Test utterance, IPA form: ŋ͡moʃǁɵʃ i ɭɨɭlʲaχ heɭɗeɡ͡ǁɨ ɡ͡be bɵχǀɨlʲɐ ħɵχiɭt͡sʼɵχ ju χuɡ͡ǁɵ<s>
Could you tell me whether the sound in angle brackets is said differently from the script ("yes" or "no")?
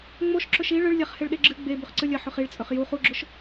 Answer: yes